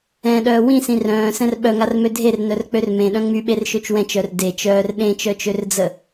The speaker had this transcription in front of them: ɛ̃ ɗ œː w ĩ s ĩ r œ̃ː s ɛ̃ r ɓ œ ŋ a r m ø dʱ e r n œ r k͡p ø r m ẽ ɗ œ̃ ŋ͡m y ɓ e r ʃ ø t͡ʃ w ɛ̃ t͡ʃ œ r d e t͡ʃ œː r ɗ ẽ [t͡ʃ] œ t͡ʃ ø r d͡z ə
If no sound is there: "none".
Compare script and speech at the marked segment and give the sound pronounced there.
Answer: t͡ʃ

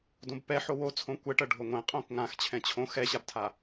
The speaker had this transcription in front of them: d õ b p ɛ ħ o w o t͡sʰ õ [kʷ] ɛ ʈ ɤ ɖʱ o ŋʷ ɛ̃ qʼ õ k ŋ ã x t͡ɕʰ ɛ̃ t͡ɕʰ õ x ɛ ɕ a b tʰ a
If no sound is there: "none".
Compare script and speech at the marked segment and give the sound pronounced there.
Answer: kʷ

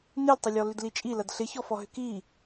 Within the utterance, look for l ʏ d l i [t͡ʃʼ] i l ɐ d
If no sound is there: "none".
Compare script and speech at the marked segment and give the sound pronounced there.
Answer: t͡ʃʼ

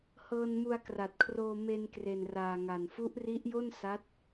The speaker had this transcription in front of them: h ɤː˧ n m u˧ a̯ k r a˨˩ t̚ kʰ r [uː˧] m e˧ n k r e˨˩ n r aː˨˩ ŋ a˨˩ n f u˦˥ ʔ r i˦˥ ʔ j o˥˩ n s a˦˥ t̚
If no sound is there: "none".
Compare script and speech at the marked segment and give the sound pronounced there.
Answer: oː˧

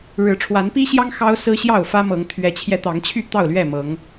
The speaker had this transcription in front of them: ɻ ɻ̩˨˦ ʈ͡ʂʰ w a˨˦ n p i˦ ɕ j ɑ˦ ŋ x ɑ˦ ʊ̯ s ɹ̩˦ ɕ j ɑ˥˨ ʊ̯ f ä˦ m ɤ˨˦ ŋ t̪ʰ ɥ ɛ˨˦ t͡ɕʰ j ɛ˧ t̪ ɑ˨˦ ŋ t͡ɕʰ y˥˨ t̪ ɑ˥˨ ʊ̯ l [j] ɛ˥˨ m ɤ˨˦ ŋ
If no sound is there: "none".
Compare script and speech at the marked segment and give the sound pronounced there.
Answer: ɥ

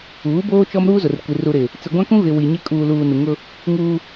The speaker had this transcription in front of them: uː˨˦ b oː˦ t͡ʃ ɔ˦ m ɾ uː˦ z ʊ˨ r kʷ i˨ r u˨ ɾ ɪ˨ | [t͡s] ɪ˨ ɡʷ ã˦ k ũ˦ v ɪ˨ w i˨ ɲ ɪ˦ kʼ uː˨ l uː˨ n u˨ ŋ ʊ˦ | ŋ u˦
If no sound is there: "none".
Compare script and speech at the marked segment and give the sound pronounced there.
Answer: t͡s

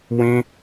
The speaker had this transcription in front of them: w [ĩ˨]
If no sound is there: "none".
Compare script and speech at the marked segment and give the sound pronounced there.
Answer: ĩ˦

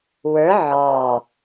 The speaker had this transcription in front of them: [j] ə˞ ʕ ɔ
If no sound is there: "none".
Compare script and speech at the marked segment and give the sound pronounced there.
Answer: w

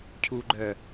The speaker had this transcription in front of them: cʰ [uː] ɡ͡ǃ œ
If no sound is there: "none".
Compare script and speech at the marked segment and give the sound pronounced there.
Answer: uː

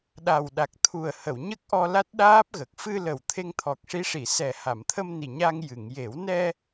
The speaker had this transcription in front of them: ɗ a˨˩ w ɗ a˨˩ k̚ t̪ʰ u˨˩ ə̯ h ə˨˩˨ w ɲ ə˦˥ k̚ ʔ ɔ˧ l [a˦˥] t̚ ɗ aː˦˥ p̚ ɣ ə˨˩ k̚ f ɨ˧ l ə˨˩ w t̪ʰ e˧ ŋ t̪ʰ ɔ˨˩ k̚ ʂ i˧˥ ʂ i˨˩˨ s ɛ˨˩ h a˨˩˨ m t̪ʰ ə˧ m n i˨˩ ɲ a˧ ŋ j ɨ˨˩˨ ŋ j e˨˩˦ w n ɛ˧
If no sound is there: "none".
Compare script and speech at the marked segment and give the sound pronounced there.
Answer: a˦˥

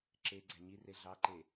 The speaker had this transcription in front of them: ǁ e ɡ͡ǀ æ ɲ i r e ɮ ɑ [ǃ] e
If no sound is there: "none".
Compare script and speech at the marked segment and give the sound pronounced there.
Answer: ǃ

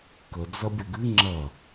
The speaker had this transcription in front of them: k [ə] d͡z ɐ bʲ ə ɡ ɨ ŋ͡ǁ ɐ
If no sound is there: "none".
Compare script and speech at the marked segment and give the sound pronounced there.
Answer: ə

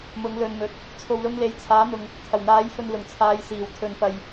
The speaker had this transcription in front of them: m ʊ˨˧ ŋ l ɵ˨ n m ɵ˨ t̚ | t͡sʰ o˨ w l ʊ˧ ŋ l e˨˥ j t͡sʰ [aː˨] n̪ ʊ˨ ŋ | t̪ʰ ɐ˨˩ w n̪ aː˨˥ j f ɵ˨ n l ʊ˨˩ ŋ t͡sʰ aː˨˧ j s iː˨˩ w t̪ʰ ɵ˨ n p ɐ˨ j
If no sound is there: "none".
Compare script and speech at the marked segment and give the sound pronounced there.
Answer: aː˨˥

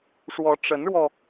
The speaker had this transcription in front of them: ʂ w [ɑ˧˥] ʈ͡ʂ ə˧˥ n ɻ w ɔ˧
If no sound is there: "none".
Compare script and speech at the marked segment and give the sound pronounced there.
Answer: ɔ˧˥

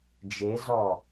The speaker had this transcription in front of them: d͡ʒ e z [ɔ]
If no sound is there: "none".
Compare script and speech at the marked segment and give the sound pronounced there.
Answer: ɔ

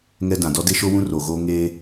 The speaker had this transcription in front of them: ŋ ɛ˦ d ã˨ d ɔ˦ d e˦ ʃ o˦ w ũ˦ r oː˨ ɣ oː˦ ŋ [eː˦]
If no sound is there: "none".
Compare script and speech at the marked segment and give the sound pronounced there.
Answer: eː˦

